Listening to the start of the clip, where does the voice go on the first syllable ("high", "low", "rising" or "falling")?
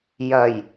low